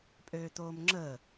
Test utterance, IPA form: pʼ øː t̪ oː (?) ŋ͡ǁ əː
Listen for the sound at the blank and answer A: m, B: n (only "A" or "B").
A